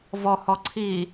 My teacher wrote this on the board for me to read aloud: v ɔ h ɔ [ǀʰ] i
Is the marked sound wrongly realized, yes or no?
no